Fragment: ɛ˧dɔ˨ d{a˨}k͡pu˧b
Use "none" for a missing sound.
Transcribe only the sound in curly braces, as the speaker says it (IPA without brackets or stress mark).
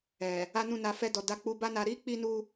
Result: a˧